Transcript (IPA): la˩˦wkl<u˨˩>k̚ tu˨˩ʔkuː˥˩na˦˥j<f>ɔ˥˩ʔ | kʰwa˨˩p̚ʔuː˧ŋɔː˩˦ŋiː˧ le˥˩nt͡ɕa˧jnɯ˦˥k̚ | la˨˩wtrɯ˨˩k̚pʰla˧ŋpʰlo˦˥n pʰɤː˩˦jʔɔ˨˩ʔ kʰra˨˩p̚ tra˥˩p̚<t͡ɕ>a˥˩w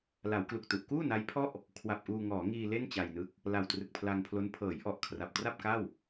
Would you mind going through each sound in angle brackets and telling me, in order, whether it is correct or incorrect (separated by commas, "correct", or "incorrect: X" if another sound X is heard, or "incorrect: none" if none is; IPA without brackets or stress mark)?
correct, incorrect: pʰ, incorrect: k